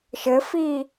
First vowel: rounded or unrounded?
unrounded